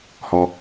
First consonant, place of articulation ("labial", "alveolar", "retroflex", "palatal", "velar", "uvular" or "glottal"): glottal